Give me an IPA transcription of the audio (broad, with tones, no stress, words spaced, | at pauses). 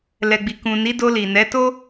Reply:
lɛ˨ɡ͡bi˨ kũ˨ ni˨˦do˧li˨ nɛ˨˦to˦